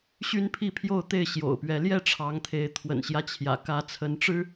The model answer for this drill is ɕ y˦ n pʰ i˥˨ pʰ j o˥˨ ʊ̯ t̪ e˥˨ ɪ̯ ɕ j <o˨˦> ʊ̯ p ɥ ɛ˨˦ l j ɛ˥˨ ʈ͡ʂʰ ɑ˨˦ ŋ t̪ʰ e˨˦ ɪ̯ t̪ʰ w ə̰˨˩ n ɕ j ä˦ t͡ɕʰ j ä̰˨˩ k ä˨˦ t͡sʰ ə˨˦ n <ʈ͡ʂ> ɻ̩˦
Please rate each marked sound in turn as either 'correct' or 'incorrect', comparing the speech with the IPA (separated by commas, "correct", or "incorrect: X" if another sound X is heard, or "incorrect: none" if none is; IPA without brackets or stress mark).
incorrect: o̰˨˩, correct